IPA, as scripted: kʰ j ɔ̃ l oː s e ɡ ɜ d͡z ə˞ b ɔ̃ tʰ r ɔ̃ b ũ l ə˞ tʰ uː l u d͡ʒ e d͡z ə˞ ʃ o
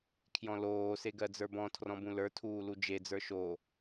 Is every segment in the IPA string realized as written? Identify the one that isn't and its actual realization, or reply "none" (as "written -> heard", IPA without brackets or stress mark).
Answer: none